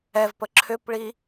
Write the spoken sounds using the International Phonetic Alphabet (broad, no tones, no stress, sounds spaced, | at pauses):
ɛ v p ə ǁʰ ʏ p ɭ i